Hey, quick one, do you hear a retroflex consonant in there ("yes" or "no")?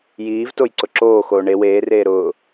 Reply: yes